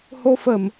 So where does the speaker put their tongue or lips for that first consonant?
throat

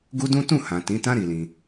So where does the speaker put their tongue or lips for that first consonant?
velum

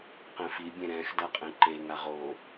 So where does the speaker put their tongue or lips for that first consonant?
uvula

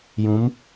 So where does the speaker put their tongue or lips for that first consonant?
palate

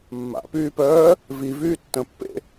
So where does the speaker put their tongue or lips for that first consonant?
lips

